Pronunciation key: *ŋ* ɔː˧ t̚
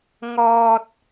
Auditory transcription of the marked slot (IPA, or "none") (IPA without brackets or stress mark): ŋ